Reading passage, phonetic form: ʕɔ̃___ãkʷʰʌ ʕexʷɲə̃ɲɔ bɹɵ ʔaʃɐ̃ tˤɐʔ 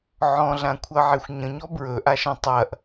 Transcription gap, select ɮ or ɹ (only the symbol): ɮ